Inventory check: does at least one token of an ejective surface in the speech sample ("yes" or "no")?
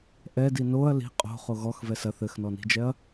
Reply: yes